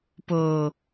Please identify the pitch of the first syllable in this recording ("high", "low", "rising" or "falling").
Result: low